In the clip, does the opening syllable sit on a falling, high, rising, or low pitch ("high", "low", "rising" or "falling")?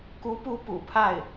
rising